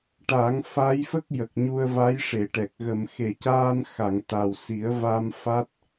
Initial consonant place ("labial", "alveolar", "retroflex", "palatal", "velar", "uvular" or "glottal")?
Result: retroflex